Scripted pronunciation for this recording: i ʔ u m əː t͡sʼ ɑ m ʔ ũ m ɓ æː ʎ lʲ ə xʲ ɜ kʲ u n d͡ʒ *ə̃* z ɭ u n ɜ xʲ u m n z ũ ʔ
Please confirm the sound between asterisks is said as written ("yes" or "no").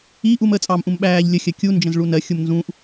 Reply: yes